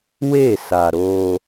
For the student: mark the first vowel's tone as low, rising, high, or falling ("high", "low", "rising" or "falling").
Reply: falling